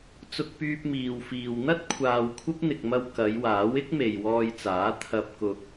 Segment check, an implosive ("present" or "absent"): absent